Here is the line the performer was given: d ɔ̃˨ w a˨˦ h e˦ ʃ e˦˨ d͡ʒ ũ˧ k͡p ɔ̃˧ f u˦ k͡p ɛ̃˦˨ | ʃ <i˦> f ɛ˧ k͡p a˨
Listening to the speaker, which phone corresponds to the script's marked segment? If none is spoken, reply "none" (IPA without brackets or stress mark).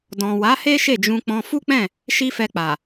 i˦